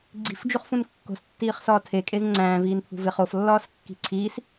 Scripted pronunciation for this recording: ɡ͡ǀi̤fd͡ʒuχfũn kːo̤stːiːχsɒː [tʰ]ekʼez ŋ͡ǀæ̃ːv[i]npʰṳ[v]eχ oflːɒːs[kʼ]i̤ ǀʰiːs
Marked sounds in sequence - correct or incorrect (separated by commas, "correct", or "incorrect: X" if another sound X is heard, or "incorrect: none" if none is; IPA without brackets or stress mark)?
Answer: correct, incorrect: iː, correct, incorrect: kː